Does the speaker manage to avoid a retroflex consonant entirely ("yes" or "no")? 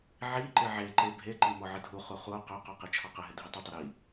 yes